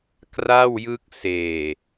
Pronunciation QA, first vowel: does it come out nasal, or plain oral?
oral